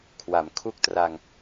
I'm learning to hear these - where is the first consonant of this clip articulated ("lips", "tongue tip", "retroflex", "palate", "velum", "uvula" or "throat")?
velum